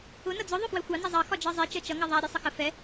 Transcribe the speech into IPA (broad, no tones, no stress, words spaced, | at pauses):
ʊ nʌd͡zʊ ðˤʊfwɛxʷɑ nizˤɑ xɒd͡ʒɜzˤi t͡ʃɜt͡ʃʌ ŋɛðˤæ ɾʲɛsˤəxə fɛ